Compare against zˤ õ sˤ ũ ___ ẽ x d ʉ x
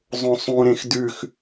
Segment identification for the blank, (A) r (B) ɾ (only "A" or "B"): B